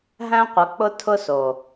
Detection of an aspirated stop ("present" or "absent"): present